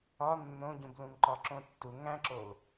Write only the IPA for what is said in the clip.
ɒ nː õ ɟ ũ b l ũ ŋ ǃ ɒ ǁ õ tː u ŋ æ̃ ǁ o l

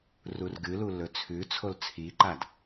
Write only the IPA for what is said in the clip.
r u r ɡ ɨ l u l ɵ t͡sʰ ʉ t͡sʰ o l t͡sʰ i ǃ a d

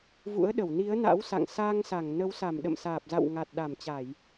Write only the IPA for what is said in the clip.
v ṵ˧˥ ə̯ ɗ ə˧˩ w n i˨˦ ə̯ n a̰˧˥ w s a̰˧˨ ŋ s aː˧ ŋ s a˧˩ ŋ n ə˨˦ w s a˧˩ m ɗ ə̰˧˨ m s aː˨˩ p̚ z a̰˧˨ w ŋ a˨˩ t̚ ɗ a˧˩ m t͡ɕ a˧˩˨ j

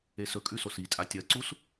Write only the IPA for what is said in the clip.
e s ɵ kʼ ʉ s o s i tʼ a tʲ ɐ ǀ u s

